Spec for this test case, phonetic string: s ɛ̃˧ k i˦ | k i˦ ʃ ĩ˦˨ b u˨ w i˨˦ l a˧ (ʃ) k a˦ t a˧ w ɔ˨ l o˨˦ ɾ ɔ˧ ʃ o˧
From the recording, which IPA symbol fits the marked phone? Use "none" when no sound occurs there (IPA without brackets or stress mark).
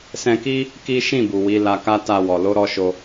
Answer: none